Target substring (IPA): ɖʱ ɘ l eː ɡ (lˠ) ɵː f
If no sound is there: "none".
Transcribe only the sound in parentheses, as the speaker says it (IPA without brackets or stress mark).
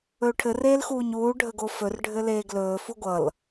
l